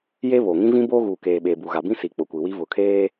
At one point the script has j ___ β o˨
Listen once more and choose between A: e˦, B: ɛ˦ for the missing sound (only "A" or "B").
A